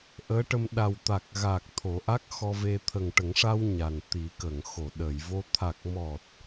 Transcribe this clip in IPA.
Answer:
ʔ əː˧˥ ʈ ə˧ m ɗ a˨˩ w t̪ a˨˩ k̚ ɣ a˨˩ k̚ t̪ʰ o˨˩˦ ʔ a˦˥ k̚ x ɔ˧ v e˧ t̪ʰ ə˨˩ ŋ ʈ ə˨˩˦ ŋ ʂ a˧ w ɲ a˨˩ n t̪ i˨˩˦ k ə˨˩˨ ŋ x o˨˩˨ ɗ ə˨˩˨ j v o˧ t̪ʰ a˨˩ k̚ m ɔ˨˩ t̚

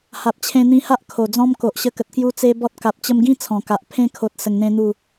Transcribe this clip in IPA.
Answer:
h a˨ p̚ t͡ɕʰ ẽ˧ n̪ ĩ˧ h a˦ ʔ kʰ o˨˩ d͡z ɔ̃˦ m k o˨ ʔ ɕ ə˧ k ə˨ t̚ k j u˧ t͡s e˦ b ɔ˦ t̚ k a˨ p̚ t͡ɕ ə˧ m ɡ ĩ˦ t͡sʰ ɔ̃˨˩ k a˨ ʔ pʰ ẽ˧ kʰ o˨ t̚ s ə˧ ŋ n̪ ẽ˦ n̪ u˥˧

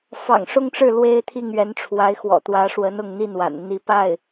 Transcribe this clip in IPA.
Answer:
f ɑ̰˨˩ ŋ ʂ ʊ˥ ŋ ʈ͡ʂ ɻ̩˥˩ l w e˥ ɪ̯ t̪ʰ i˥˩ ŋ ɥ ɛ˧˥ n ʈ͡ʂʰ w a˧˥ ɪ̯ x w ɔ̰˨˩ t̪ w ä˧˥ ʂ w ə˧˥ n ʊ˥˧ ŋ n̪ i˥˩ n w a̰˨˩ n n̪ i˧˥ p a˥˩ ɪ̯

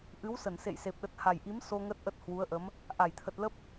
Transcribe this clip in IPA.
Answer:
ʔ ɨ˨˦ w s ə˧˩ n s ḛ˧˨ j s e˨˩ p̚ ɗ ə˨˩ t̚ h a˨˩ j ʔ i˨˦ m s o˧ ŋ ə˦˥ t̚ ʔ ə˦˥ t̚ h w u˨˦ ə̯ ʔ ə˨˦ m | ʔ a˧˩ j t̪ʰ ə˨˩ t̚ l ə˦˥ p̚

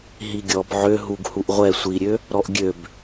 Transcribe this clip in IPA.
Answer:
ɦ i ɡʲ ɔ b ʕ ø ɦ u ɡ h u ʔ ʁʷ ɛ sʷ i ɾʲ ø | ɾ ɔ ʔ ɡʲ ø b

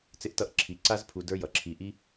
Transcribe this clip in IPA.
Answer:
t͡s ɪ˧ ʔ t ʌ˧ ʔ ǁʰ i˨ ǀ a˧ z pʰ u˨ d ə˞˦ j ʌ˨ ǁʰ i˧ ʔ i˦

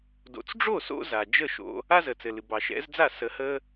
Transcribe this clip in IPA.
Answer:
d o̰˨ t͡s ɖ͡ʐ o˦˨ s o̰˧ z a˨ d͡ʒ ə˦˨ ʃ o̰˧ | a˦ z ə˨ t͡s ɘ˨ l ɨ˨ b ɑ˨ ʃ ɛ̰˨˦ z d͡z a˦˨ s ə˧ h ə˦

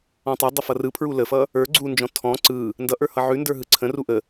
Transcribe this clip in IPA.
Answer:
ɔ̃ tˤ ə dˤ ə f ʌ r ɯ pʰ ɹ u l ə f ʌ | ə˞ ɡ͡ǀ u n d͡ʒ ɔ̃ tʰ ɔ̃ ǀ ɯ | n d ʌ ʔ ə˞ h ʌ ʕ ʉ n d ə˞ ɦ ɯ ǀʰ ə̃ r u ʔ ə

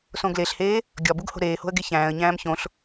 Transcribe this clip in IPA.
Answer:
s õ ɡ l e ɬ h eː | ɡʲ ɒ b u ɡ h o̤ ɾ eː h o̤ ə̯ ɡ e ç æ̃ː ə̯ ɲ æ̃ː m ç õ ɬ

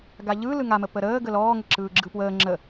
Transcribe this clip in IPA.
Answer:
ɡ a ʎ ɯ l ɯ ŋ a m ə p ə ɾ əː ɡ ə l ɔː ŋ ə ǁ ɯː ɡ͡ǁ ɯ p w əː ŋ͡ǁ ə

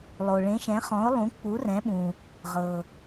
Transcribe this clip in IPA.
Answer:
lˠ o˨ ɭ ẽ˨˥ ʃ ɛ̃˨˥ χ ɔ̃˨˥ ʊ̯ lˠ ũ˨˥ k͡p u˨˥ r ɛ̃˨˥ ɓ ũ˨ | ʁ ɤ˨

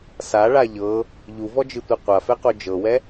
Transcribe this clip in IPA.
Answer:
s a ɭ a ʎ ɤ | ʎ u v ɔ d͡ʒ ɯ tʷ ɛ qʷ a f ɛ q o d͡ʒ ɤ w ɛ

